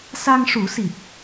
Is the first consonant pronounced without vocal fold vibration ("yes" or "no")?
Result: yes